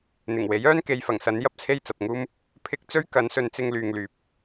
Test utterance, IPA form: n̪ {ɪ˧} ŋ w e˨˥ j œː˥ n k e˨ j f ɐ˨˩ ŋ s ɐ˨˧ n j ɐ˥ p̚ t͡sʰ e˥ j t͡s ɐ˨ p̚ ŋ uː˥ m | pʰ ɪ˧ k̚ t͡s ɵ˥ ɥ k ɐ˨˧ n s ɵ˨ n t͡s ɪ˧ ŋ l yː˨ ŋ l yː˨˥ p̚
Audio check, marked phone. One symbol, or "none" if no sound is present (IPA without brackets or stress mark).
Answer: ɪ˨˩